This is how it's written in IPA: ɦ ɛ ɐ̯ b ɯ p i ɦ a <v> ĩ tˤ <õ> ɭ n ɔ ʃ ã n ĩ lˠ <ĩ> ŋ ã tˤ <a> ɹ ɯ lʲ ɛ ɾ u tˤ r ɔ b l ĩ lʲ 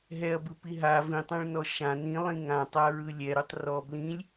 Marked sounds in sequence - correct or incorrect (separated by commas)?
correct, correct, correct, correct